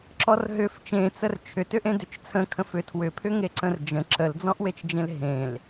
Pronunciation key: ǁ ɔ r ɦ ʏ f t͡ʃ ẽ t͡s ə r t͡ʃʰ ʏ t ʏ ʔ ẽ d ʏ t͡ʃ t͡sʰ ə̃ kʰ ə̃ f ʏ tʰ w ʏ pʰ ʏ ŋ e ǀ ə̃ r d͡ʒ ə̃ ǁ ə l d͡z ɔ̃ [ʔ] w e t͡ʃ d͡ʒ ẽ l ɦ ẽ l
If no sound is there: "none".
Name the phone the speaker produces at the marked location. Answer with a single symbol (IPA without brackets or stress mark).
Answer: ʔ